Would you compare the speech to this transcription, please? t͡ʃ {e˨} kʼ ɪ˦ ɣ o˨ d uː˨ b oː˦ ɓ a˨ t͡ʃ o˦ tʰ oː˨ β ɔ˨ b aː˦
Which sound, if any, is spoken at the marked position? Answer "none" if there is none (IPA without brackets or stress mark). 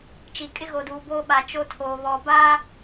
i˨